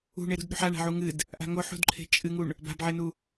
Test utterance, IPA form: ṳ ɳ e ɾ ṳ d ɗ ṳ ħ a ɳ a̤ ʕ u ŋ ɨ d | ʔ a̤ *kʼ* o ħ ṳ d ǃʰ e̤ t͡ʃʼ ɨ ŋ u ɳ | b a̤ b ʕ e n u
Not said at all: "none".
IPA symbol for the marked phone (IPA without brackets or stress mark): ŋ